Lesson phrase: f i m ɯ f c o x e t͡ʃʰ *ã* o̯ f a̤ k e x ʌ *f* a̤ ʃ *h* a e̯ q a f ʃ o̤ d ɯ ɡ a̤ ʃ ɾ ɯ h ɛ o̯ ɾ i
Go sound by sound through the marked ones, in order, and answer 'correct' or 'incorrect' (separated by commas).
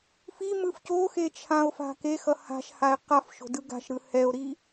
correct, incorrect, correct